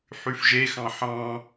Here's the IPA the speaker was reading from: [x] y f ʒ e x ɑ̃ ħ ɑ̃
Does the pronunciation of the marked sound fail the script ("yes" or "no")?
yes